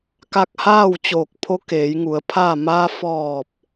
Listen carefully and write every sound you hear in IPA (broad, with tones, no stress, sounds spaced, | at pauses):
k a˧ k̚ h aː˥˨ w t͡ɕ oː˧˩ k̚ pʰ o˧˥ k eː˩˧ j ŋ u˩˧ ə̯ pʰ aː˥˨ m aː˧ f ɔː˧˩ p̚